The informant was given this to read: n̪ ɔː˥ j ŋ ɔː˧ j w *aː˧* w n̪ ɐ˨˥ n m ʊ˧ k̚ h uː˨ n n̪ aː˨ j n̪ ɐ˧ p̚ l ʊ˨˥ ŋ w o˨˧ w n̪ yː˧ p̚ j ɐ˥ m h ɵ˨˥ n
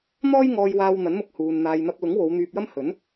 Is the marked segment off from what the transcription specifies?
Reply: no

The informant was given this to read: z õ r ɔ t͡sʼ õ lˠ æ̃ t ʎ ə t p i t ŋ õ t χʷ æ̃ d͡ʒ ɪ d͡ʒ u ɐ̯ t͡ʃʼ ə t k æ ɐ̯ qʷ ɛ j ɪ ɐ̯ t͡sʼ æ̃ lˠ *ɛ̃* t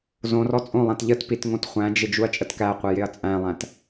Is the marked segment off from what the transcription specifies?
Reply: yes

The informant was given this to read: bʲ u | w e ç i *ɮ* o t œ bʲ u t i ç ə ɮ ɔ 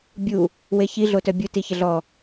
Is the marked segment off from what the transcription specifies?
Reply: no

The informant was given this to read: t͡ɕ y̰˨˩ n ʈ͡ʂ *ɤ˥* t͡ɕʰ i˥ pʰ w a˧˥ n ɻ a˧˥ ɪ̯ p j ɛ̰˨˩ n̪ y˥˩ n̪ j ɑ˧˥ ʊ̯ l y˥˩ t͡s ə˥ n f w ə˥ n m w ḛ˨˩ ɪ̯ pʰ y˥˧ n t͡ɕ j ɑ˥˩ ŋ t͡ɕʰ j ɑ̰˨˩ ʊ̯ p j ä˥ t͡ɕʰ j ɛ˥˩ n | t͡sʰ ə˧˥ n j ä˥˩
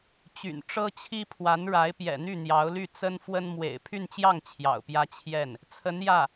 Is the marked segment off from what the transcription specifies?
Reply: no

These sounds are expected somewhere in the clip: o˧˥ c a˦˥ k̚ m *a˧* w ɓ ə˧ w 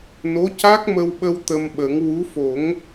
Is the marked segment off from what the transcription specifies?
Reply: yes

